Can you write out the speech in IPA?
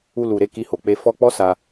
u˧ l u˨ ɾ e˧ k i˧ h o˨ k͡p e˧ f ɔ˧ k͡p ɔ˦ s a˧

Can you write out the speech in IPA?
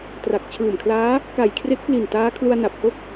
t r a˨˩ k̚ t͡ɕʰ ɯː˨˩ m kʰ l aː˦˥ | k a˨˩ j kʰ r e˦˥ k̚ p l i˨˩ n t aː˦˥ kʰ l u˧ a̯ n a˨˩ p̚ h o˦˥ k̚

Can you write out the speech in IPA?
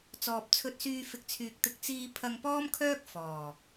t͡s ɔː˨ p̚ t͡sʰ ɵ˧ t̚ s yː˧ f ɪ˨ k̚ t͡sʰ yː˨ k̚ t̪ ɪ˧ k̚ t͡s iː˧ pʰ ɐ˧ ŋ p ɔː˥ m kʰ œː˥ k̚ f ɔː˨˩

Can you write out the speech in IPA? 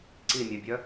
ǀ i mʲ œ bʲ œ

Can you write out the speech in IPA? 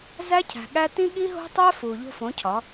z æ˦ cʰ æ̤˨ ɠ æ˦ t ĩ˦ ɠ i˦ ɦ o̤˦ tˤ æ˦ f uː˨ ʎ o̤˦ f õ˨˦ cʰ ɒ˨˦

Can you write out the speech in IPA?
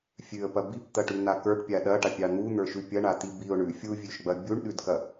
fʲ ʉ ə̯ p ɐ b i p t̪ ɐ ʈ ʉ n̪ a k ə˞ ʈ pʲ a ɗ ɐ ʈ a pʲ ɑ n̪ u n̪ ə˞ ʃ ʉ pʲ ɐ ɳ a t̪ i b i ʊ̯ ɳ ʉ fʲ u vʲ ʉ ʃ ɡ͡b ɐ bʲ u ɳ ɗ ʉ d k ɐ

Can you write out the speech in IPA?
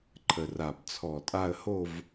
ǃʰ ə˨˩ r a˨˩ b t͡sʰ ɔ˨˩ tʼ a˦˨ ə̯ h o˦˨ v

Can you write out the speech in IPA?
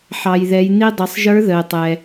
ħ ɑ˩ j ð ɛ˩˧ j n i˧ dˤ ɪ˩˧ sˤ ʒ ə˞˧˥ ð ə˩ e̯ tˤ ɛ˩

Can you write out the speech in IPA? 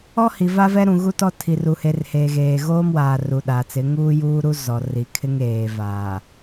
ɔ˦ h i˨ v a˦ v ɛ˦ ɾ ũ˨ ɣ u˦ t ɔ˦ tʰ i˨ r u˨ h e˨ r h eː˨ ɣ eː˨ ɣ oː˦ m w aː˨ r u˨ ɗ a˨ t͡s ɪ˨˦ ŋ uː˦ j uː˦ ɾ u˦ z ɔ˨ r i˨ kʰ ɪ˦ ŋ eː˨ v aː˨

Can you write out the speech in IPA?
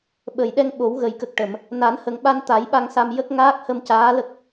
ɓ ə˨˩˨ j ɗ ɛ˧ ŋ ɓ o˨˩˦ w ɣ ə˨˩ j k ə˨˩ k̚ ʈ ə˨˩˨ m | n a˨˩˦ n h ə˨˩ ŋ ɓ a˧ n t̪ a˨˩˦ j ɓ a˧ ŋ s a˧ m j ə˦˥ k̚ ŋ aː˦˥ k̚ h ə˧ m c aː˧˥ l ə˦˥ k̚

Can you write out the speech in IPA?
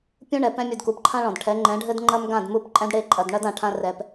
pʲ ũ˦ ɳ ɛ˨ p ɛ̃˦ mʲ u˨ d k u˨ p ǃʰ ã˦ ɭ ɔ̃˨ d ʈʰ ɛ˨˦ ŋ͡ǃ ɛ̃˨˦ ɖʱ ɘ˦ d ŋ͡ǃ ɐ˦ m ɡ ã˦˨ d m u˦˨ p ǃʼ ɛ̃˦ d ɽ e˦ ǃʼ ɐ˨ d ɳ ɐ˦ d ã˨ ʈʰ ã˦ r ɛ˦ p

